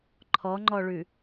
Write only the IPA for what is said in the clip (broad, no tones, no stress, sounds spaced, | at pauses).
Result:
ǃʰ ɔ ŋ͡ǃ ɔ ɭ ʉ